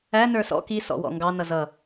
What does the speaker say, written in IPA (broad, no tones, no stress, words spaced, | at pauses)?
æ nə˞sɔ̰ ki sɔ̰wɔ̰ŋɡɑ nʌzʌ